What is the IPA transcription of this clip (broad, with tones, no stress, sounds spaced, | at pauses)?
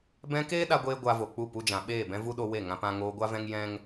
b ɛ̃˧ k eː˦ ɗ a˧ ɡʷ eː˧ ɡʷ a˧ v o˨ k͡p u˦˨ p u˦ d͡ʒ ã˨ ɓ eː˦˨ b ɛ̃˦ v u˦ ɗ o˧ w e˦˨ ŋ ã˧ p ã˧ ŋ oː˧ ɡʷ a˦ v ɛ̃˦ ŋ j ɛ̃˦ ŋ